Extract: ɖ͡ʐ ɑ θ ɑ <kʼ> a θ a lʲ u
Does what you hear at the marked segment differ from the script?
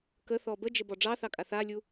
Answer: no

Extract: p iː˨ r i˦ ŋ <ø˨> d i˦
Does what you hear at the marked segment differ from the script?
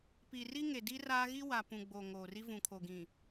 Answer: yes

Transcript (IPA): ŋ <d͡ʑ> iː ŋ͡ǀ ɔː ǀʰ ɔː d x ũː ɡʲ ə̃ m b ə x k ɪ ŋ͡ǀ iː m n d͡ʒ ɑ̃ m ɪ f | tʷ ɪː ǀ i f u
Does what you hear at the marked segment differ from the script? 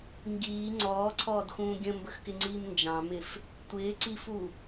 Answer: yes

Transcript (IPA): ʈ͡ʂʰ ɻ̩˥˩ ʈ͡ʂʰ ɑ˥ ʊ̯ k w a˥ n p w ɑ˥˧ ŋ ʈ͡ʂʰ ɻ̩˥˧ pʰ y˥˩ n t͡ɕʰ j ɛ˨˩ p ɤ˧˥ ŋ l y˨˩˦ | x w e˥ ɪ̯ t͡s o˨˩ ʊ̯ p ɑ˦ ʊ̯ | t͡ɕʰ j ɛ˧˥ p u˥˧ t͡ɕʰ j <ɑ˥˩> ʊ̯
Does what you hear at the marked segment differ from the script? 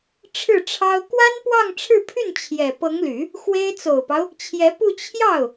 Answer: no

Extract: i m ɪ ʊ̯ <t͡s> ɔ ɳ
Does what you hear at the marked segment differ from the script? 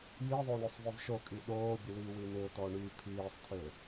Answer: yes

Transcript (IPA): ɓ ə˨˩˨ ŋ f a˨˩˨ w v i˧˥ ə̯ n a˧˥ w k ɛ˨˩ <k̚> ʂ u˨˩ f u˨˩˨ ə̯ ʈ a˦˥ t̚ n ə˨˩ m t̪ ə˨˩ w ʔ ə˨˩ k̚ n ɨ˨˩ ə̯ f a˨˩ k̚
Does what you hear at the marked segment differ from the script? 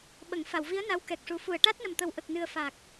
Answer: no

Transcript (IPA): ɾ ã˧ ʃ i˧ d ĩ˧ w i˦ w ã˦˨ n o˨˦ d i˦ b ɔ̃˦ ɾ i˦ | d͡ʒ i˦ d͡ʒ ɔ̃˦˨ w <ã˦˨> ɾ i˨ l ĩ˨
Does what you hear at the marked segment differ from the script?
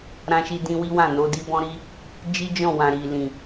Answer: yes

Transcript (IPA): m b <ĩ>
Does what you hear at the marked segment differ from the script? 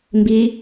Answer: yes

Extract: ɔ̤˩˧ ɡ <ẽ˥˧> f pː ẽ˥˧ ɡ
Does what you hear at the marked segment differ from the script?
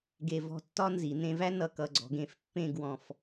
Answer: yes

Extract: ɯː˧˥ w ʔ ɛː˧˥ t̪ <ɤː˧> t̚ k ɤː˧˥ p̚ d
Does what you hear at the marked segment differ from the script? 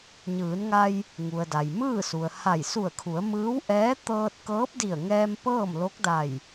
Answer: no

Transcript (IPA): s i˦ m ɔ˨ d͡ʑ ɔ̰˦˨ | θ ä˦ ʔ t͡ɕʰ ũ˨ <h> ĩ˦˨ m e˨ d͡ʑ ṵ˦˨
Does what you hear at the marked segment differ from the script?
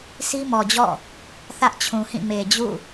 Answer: no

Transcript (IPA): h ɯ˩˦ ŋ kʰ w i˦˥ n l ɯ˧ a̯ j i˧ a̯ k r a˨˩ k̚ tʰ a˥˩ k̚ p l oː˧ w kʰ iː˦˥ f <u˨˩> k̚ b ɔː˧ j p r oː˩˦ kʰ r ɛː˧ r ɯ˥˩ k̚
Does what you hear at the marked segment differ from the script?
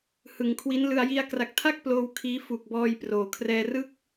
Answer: no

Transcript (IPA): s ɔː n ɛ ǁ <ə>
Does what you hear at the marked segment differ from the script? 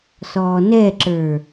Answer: yes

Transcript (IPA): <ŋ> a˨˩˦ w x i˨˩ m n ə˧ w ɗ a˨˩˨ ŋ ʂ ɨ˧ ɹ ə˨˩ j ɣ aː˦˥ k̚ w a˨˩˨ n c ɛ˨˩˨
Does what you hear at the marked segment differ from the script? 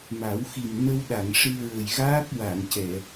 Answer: yes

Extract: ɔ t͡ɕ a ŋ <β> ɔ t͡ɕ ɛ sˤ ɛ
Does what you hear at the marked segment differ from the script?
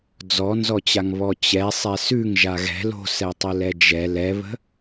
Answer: no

